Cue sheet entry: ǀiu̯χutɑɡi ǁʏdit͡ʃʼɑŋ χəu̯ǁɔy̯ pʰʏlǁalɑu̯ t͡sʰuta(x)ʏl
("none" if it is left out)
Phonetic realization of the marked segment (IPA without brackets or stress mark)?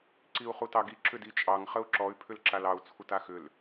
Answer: x